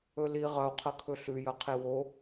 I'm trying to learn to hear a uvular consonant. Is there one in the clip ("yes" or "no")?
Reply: yes